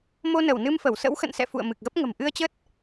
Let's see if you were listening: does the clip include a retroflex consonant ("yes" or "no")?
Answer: no